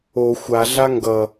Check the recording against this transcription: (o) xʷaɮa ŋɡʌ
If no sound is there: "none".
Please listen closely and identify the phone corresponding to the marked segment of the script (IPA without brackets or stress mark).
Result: o